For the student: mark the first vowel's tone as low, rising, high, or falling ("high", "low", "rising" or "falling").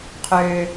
low